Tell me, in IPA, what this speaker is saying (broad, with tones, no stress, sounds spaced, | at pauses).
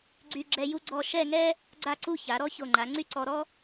ɡ͡ǀ y˧ ɡ͡ǁ ɛ˧ j u˥ ɡ͡ǀ ɔ˥˧ ʃ ɛ˥˧ ŋ ɛ˥ | ɡ͡ǀ a˥˧ ǀ u˥˧ ç a˩˧ ɾ ɔ˥ ç o˧˩ ŋ͡ǃ a˩˧ ŋ͡ǀ y˥ ǀ ɔ˧ ɾ ɔ˥